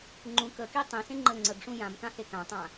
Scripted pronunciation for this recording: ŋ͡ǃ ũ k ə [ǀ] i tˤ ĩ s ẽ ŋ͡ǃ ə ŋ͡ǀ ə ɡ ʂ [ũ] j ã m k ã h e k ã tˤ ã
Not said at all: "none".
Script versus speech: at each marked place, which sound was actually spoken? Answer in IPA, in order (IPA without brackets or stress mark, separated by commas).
k, ũ